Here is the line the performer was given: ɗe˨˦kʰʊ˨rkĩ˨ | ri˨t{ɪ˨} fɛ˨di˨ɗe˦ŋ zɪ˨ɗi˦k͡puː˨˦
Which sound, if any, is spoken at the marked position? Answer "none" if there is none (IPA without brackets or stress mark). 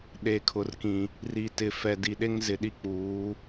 ɪ˨